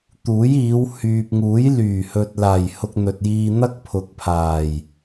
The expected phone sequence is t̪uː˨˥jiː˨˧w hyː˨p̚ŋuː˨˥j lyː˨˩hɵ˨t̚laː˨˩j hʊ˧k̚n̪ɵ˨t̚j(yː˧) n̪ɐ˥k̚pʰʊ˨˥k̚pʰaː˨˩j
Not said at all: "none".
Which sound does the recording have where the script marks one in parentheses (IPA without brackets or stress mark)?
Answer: iː˧